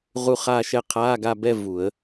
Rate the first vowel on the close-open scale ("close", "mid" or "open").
close